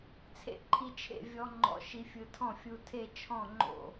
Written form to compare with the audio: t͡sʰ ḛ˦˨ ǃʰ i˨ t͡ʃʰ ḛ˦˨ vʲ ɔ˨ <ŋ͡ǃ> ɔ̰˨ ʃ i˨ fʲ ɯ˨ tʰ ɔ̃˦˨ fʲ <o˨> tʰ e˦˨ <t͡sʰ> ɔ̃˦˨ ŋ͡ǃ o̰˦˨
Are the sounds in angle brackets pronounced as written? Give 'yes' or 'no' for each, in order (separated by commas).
yes, no, no